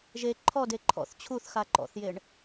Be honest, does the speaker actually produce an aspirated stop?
yes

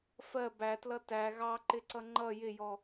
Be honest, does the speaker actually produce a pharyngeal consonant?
no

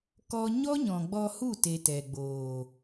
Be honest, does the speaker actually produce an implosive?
no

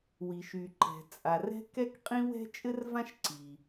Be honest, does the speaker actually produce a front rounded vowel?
yes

